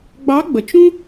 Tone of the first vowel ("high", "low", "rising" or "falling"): rising